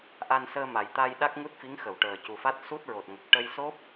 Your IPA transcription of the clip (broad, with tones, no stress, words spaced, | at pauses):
ʔa˧nsəː˧ ma˨˩jt̪a˧j ɗa˦˥k̚ŋu˦˥t̚fi˧˥ŋxə˨˩˨w ʈəː˨˩cu˨˩fa˦˥t̚ su˦˥t̚ɹo˨˩t̚ŋə˨˩k̚ ʈə˧jso˦˥p̚